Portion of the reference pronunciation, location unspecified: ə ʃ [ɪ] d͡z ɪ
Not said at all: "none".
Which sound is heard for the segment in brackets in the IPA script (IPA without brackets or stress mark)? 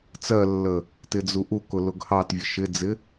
ɪ